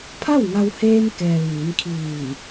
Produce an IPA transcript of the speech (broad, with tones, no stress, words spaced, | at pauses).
pʰa˥˨wŋa˧wheː˧mkɛː˩ ʋiː˩˧nkʰiː˧˩